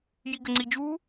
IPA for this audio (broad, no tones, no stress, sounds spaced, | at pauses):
j i ɡ ə ŋ͡ǀ i d͡ʒ u